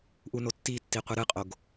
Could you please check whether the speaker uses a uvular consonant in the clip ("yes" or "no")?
yes